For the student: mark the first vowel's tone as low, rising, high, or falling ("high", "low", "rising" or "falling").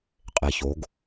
low